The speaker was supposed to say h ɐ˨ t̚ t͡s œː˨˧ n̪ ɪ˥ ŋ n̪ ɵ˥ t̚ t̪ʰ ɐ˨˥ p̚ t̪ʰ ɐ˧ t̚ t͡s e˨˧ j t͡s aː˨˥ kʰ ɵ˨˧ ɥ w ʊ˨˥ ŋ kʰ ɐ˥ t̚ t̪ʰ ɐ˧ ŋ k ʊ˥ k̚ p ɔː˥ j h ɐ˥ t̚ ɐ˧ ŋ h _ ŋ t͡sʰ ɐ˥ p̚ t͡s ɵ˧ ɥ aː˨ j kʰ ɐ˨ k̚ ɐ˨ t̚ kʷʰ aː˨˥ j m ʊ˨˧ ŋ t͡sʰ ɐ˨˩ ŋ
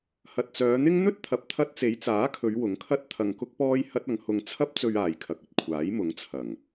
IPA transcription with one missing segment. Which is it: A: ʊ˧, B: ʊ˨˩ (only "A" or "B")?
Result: A